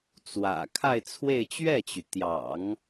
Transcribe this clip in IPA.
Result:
t͡swä̰˨˩ kʰa˥˧ɪ̯t͡sʰwe˥˧ɪ̯ t͡ɕɥɛ˥˩t͡ɕy˩t̪jɑ̰˨˩˦ŋ

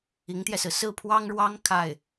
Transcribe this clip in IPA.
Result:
i˧˥ŋt̪jɛ˧sɹ̩˩ sɹ̩˥˩pʰwɑ˥ŋɻwɑ˥ŋ kʰa˥˩ɪ̯

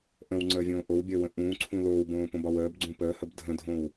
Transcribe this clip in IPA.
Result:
ʔə̃wŋ͡ǀəːvʲõː ʔowbʲəːwə̃ ʔũːǀʰũ loːwbõːpõbɒw əːbɡ͡ǀũ pəːhəb dʱə̃dʱõw

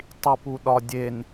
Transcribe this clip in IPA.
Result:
tˤipuɗɒdʲen

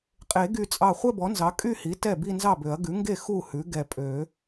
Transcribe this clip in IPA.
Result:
qʼe˨˩˦ɡy˧˩t͡sʼɑ˧˩ χʷɛ˥˧bɔ˩˥nzɑ˩˥ kʼy˥˧hi˩˥ tɛ˥˩bi˥˧nzɑ˥˩bø˨˩˦ɐ̯ ɡʉ˩˥ŋɡe˥˩ xu˥˩ hʉ˩˥ɡɛ˧˩ pʼø˨˩˦

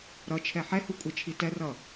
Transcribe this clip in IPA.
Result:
ɾʌt͡ʃʰɛ ħɛhukʷʼet͡ʃʰi tɛrʌ

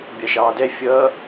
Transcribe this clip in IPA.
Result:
bʲɑʃɑːdɛ fʲʌː

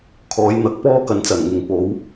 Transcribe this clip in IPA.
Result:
kʰɔː˨˧j n̪ɐ˨˥k̚pɔː˧kɐ˨nt͡sɐ˨˩n ŋɪ˨ŋpo˨˧w

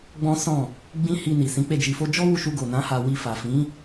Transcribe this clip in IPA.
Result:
ɡ͡bɔ̃˦sɔ̃˦˨ | ɡ͡bĩ˦ hi˧ni˨ sĩ˨˦k͡pe˦˨d͡ʒi˧fo˦ d͡ʒɔ˦wu˧ ʃu˧ɡo˨nã˨˦ ha˧wi˧fa˨ fĩ˨˦

